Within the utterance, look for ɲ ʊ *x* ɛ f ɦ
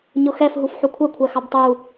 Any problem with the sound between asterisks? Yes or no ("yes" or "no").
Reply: no